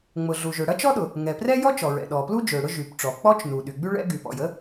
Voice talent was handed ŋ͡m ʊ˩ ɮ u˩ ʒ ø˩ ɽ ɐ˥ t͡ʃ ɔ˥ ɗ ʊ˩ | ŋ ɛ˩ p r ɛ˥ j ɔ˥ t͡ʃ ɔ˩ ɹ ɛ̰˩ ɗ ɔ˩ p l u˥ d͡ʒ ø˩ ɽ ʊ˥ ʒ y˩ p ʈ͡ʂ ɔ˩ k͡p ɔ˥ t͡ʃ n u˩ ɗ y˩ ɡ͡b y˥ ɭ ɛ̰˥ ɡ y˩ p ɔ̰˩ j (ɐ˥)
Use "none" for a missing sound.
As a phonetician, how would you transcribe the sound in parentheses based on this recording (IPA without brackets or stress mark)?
ə˥